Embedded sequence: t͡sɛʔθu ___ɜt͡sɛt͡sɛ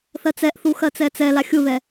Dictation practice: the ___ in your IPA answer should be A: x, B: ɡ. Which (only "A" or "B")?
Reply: A